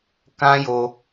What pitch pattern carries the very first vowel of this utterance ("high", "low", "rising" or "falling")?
high